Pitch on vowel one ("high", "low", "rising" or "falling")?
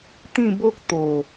falling